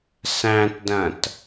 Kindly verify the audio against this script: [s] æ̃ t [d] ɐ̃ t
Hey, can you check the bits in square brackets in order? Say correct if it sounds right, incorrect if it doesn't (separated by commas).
correct, correct